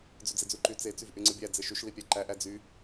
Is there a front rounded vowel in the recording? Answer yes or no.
yes